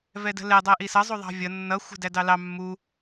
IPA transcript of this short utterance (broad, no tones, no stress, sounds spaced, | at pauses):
v ɛ d ə̤ l ɛ dˤ ɛ ʔ i s ʌ zˤ u ðˤ ɑ̤ vʲ ʌ nː ʌ xʷ ə̤ d æ d ɑ l ɑ mː u